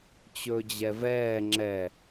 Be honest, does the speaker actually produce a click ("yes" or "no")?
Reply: yes